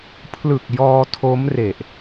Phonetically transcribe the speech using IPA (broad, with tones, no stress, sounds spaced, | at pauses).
pʰ l ɯ˨˩ k̚ j ɔː˧ tʰ o˦˥ m r e˨˩ ʔ